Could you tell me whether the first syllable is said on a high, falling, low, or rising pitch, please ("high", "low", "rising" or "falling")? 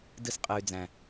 high